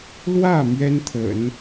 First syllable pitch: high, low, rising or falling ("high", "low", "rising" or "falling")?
falling